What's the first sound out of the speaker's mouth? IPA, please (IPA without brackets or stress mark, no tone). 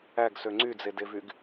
æ